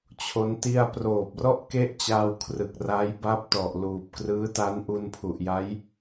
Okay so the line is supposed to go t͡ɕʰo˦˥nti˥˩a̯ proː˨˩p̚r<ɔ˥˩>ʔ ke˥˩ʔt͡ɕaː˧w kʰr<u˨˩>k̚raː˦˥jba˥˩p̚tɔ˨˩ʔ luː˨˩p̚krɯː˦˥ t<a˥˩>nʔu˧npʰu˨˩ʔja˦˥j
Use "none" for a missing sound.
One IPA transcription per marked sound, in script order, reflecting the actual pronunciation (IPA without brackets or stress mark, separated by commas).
ɔ˥˩, ɯ˨˩, a˦˥